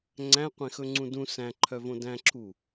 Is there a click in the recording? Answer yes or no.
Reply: yes